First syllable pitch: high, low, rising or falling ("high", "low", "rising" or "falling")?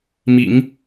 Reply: low